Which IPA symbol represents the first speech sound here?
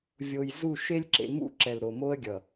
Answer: vʲ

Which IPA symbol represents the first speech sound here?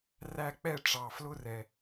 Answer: r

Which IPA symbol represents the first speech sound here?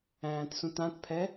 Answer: æ̃ː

